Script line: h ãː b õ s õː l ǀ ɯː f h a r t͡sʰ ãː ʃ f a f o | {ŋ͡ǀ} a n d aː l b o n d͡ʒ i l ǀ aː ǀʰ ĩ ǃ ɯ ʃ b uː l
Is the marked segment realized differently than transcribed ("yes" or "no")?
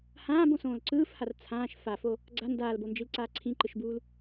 yes